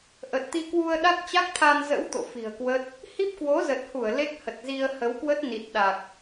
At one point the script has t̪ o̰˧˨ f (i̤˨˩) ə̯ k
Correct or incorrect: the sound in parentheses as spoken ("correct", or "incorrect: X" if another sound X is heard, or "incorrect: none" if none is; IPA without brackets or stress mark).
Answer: correct